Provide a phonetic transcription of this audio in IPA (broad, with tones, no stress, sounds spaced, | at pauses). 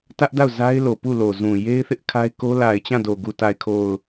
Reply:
t ä˦ ʔ d a˦˨ ʊ̯ z a˦ ɪ̯ l o˨ p u˦˨ l o˨ z ũ˨ j e˦ ɪ̯ θ ɪ˦ ʔ kʰ a˦ ɪ̯ k o˦ l a˨ ɪ̯ t͡ɕ ã˦˨ d o˨ ɡ u˨ t a˨ ɪ̯ kʰ o˨ ʊ̯